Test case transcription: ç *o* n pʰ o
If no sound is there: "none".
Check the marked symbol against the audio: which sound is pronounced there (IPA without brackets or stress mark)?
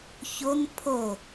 o